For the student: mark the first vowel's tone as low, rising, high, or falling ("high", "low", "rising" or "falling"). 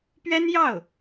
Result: high